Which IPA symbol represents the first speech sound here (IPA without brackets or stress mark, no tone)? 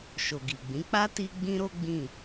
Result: ʃ